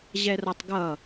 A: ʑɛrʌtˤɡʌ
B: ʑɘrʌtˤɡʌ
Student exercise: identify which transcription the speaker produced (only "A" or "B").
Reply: A